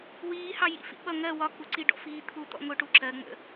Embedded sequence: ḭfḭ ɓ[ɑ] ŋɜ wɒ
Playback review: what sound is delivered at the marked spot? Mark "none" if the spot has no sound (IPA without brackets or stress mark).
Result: ʌ